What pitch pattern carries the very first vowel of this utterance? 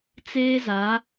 high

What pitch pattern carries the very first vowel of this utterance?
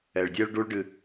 low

